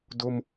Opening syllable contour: high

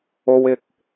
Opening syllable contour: low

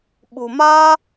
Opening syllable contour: low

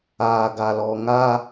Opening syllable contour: low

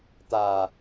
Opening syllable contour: low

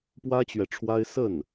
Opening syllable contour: high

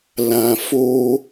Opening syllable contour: low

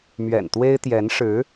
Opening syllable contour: low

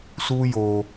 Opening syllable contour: high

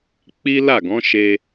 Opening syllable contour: high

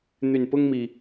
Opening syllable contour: low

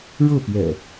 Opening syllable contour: falling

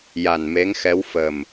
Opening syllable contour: low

